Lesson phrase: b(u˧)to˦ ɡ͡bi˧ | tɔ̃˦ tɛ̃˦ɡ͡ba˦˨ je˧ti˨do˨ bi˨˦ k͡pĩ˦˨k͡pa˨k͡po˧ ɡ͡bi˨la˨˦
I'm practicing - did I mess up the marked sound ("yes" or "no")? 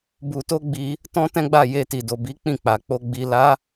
no